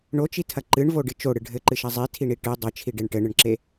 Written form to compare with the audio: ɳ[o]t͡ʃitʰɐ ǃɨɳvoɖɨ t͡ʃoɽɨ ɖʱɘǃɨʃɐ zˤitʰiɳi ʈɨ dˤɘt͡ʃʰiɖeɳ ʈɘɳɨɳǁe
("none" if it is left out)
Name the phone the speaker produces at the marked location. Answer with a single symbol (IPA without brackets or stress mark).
o